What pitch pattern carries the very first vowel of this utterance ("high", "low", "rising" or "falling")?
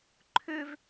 high